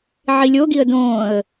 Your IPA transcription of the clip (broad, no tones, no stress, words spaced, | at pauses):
ʕilʲoɡiə̯ dõːə̯